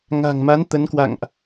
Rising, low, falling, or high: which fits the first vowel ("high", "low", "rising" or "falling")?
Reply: low